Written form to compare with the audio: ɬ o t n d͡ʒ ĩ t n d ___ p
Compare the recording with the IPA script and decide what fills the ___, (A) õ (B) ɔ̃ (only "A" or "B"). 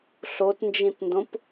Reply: A